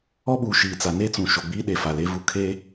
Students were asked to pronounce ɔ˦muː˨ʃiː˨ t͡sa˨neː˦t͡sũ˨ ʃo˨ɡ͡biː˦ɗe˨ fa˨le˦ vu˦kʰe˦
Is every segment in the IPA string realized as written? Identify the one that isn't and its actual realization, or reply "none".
m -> ɓ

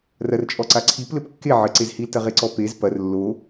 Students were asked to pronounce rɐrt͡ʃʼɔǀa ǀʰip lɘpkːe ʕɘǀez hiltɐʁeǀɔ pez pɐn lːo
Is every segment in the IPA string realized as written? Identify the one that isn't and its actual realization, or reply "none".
n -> r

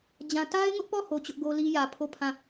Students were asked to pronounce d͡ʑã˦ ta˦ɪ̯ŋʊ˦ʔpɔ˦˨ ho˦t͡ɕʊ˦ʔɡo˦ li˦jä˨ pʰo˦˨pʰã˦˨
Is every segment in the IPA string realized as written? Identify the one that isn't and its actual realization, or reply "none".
none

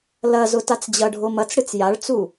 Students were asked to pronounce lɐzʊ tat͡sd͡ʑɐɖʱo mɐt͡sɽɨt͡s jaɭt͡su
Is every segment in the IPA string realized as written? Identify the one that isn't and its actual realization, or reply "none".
none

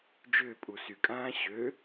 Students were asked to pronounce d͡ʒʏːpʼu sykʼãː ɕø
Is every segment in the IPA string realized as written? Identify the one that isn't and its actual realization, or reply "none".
none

